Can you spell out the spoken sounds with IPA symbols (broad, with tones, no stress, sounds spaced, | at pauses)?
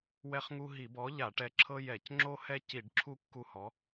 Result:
w ɛ˦ χ ŋ u˦ ɦ i˧˩˧ b ɔ˨˥ ʎ a˧˩˧ ʈ ɛ˨˥ ǁʰ ɤ˦ j ɛ˧˩˧ c ŋ͡ǁ o˦ h ɛ˦ c i˧˩˧ ɖ ǁʰ u˦ kː u˦ h ɔ˨˥